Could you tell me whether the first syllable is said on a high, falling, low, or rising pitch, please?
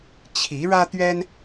rising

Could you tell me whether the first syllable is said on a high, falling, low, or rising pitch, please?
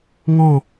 falling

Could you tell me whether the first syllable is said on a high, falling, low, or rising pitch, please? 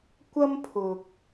high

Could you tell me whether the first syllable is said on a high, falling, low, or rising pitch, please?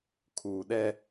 low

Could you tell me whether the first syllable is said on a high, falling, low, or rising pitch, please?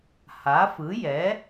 rising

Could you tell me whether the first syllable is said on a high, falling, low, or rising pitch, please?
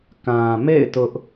low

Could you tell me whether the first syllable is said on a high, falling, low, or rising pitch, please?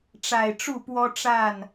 low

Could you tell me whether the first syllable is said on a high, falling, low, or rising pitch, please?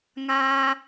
high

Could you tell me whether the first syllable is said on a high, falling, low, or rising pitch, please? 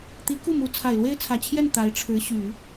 rising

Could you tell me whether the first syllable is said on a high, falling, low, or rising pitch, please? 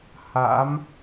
rising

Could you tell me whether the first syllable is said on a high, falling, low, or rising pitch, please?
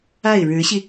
falling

